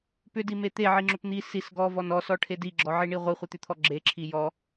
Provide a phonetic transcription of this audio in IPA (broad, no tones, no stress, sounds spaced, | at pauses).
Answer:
p ʏ d i m e t̪ e ʕ i ŋ͡ǁ ʏ p n̪ i s i s ɡ ɔ v ɔ n ɔ s ɔ ʈʰ e d i ɡ͡ǁ ɔ ʕ i ɳ i ʁʷ i χʷ i t̪ ʏ t̪ʰ ɔ ɡ͡ǁ e ǁʰ i j ɔ